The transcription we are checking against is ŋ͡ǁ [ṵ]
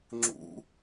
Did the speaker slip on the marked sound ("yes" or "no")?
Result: no